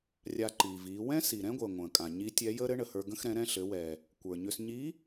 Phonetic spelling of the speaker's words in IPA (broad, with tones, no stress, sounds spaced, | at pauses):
rʲ a˧ ǃ iː˩ v iː˩˧ w ɛ̃˥ s i˩ ɾ ɛ̃˥ ɡʷ əː˩ ŋʷ ə̃ː˩ kʼ ã˩ ɲ i˧˥ tʲ ɛ˧˥ j əː˥ ɾ ɘ˧˥ ɳ ə˩ h ə˞˧ ɡ ə̃˧ x ɾ ɛ̃˩˧ ɾ ɛ̃˧ ɬ ɘ˩˧ w ɛ˩ | kʷ ə˞˩ ɲ ʏ˧ s ɲ i˧˥